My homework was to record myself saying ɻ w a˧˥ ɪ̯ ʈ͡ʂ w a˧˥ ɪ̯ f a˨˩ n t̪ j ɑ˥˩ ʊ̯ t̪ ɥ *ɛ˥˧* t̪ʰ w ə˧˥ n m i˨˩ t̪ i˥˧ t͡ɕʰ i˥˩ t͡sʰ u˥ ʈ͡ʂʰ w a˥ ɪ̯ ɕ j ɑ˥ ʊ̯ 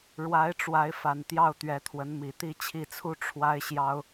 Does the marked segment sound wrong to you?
yes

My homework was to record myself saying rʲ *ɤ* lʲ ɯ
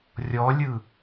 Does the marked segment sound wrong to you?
yes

